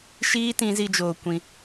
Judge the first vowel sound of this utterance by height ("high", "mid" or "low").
high